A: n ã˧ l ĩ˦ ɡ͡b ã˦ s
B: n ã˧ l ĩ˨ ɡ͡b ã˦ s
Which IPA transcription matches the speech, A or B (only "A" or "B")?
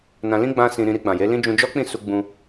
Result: A